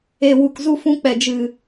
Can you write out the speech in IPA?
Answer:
e˨ w u˨ k z u˧ f ũ˧ k͡p ɛ˨ d͡ʒ ɨ˨

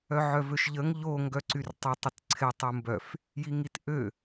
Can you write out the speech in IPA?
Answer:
œ ʕ œ v ø ʃ ʎ ə ŋ ʎ o ŋ ɡ œ ǀ y r tˤ ɪ tˤ ə t ǀʰ ɪ tˤ u m b œ f | j i ŋ i t ʔ ø

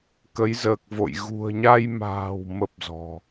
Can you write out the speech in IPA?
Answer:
k ə˨˦ j z əː˨˩ k̚ v o̰˧˨ j ɣ ṳ˨˩ ə̯ ɲ a˧ j m a̤ː˨˩ w m ə˦˥ p̚ z ɔ̤˨˩

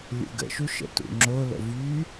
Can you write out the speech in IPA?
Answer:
lʲ ṵ ɡ ə̰ ʃ u ʃ ə̰ t ṵ ŋ͡ǁ o l ə̰ v y

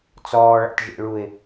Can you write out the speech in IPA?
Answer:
t͡s ɔː ɭ a̰ t ʒ ḛ ɭ u ɪ̯

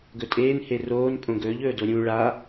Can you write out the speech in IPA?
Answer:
ɡ ɵ tʼ eː n h e r oː n pʼ õ ɡ ɵː ʎ ɵː d o ɾʲ ũ ɭ a

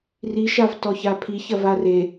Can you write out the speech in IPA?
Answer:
r i ʃ a v t ɔ ç a pʰ i ç ɐ v a r e

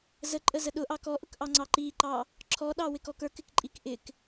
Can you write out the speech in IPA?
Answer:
z ə ǃʼ ə z ə ɗ ʊ ʔ ɑ k ɔ ʔ ʊ k ʔ ɑ ŋ͡ǀ ɑ ǃ i ǃ ɑ | ǁʰ ɔ ɗ ɑ w ɪ k ɔ k ə˞ k ɪ k ǃʼ i k ʔ ɪ k

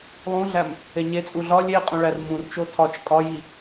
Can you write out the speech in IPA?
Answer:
lˠ ũ ɮ æ m | e ɲ e t͡sʼ u ɮ ɒ lʲ e qʼ ũ ɭ æ r m ũ r t͡ʃ o tʰ ɒ t͡ʃ kʼ ɒ j i

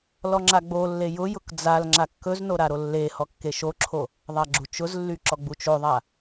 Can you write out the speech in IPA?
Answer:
l ɔ ŋ͡ǁ a ɡ͡b o lː e j ʊ j ʊ k d͡z a l ŋ͡ǁ a kː ɵ z n o ɾ a ɾ o lː e h ɔ kː e ʃ o ǁʰ o | ðˤ a ɡ͡ǁ u t͡ʃ ʊ z lː y ǁ ɔ ɡ͡b u t͡ʃ o ðˤ a

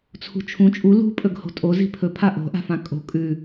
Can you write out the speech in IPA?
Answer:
t͡sʰ ṳ t͡ʃʰ ũ t͡ʃʼ u l ṳ pʼ ɵ ɡ h o̤ tʼ o z i̤ pʰ ɵ pʰ a ʔ o̤ ʔ a̤ f ã kʼ o̤ kʼ ʉ

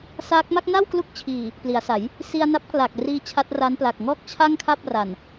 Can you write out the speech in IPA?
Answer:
s a˦˥ k̚ m a˥˩ k̚ n a˥˩ w k l u˦˥ k̚ t͡ɕʰ iː˨˩ | p l i˩˦ a̯ s a˩˦ j | s i˧ a̯ n a˦˥ p̚ k l a˨˩ k̚ r iː˧ t͡ɕʰ a˦˥ t̚ r a˦˥ n p l a˨˩ k̚ ŋ ɔː˥˩ k̚ t͡ɕʰ a˥˩ ŋ kʰ a˥˩ p̚ r a˨˩ n

